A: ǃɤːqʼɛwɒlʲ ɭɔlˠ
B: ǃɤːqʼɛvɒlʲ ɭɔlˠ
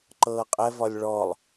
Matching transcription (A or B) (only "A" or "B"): B